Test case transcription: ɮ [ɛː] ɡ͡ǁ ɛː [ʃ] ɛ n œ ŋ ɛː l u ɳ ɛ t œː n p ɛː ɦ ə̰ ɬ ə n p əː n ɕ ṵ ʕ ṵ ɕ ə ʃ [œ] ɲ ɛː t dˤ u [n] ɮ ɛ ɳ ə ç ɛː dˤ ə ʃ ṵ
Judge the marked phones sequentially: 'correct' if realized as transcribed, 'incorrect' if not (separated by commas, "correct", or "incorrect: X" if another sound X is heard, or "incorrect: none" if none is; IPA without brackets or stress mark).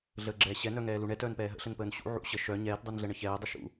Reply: incorrect: əː, incorrect: ɕ, correct, correct